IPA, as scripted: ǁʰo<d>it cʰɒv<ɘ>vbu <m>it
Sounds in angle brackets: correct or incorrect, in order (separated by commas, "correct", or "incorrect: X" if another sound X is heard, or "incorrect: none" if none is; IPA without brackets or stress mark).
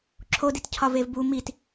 correct, incorrect: e, correct